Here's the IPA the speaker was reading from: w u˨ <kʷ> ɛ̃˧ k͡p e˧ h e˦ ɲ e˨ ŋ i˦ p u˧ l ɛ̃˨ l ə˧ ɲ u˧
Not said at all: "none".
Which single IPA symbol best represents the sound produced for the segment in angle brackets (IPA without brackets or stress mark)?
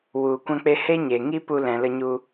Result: kʷ